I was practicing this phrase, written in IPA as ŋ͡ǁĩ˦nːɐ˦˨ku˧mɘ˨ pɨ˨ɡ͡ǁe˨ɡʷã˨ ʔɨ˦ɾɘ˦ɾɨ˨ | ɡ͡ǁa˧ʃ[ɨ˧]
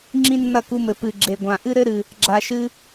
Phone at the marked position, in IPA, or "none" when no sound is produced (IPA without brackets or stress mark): ɨ˦